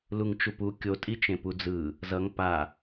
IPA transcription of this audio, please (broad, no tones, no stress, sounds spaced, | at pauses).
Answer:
l u ŋ t͡ʃ u p u kʲ o tʼ i t͡ʃ ẽ p u d͡z ɯ | z ʌ ŋ p a